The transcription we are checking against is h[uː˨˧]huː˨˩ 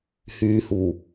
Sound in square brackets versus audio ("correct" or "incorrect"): incorrect